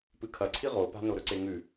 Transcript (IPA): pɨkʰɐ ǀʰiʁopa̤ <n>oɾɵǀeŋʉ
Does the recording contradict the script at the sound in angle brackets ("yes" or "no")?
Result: no